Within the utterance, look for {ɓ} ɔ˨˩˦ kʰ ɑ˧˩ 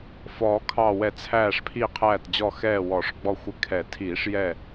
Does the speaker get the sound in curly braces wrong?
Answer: yes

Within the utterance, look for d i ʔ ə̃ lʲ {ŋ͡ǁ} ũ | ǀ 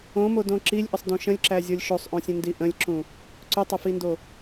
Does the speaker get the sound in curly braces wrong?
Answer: yes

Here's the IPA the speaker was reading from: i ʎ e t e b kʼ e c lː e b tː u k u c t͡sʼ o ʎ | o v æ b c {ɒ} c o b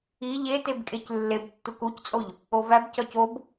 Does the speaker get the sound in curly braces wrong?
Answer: no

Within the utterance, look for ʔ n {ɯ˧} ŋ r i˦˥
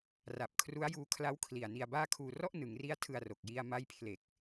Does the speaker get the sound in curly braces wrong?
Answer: yes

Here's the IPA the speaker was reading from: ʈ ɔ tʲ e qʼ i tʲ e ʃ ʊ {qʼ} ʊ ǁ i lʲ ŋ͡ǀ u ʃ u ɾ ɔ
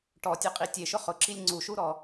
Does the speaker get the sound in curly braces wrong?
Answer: yes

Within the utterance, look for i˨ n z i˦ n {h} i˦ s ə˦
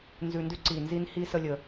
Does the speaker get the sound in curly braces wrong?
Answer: no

